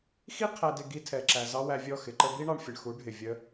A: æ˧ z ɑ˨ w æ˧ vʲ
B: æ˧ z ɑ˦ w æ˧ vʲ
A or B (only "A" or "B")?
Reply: B